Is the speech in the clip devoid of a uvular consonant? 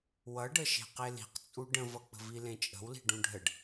no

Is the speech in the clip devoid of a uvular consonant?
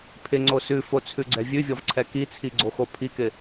yes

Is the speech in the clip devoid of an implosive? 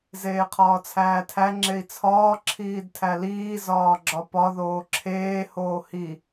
yes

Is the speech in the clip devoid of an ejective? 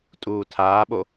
no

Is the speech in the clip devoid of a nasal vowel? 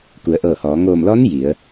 yes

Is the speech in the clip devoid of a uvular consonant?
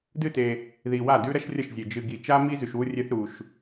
yes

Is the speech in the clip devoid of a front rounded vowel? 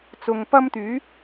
no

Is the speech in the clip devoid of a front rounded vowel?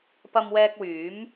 no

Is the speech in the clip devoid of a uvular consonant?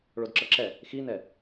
yes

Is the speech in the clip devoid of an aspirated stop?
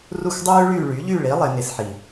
yes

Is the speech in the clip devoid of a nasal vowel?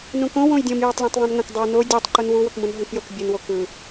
no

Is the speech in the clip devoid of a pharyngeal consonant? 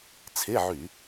no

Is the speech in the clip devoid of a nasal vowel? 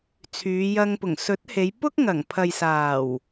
yes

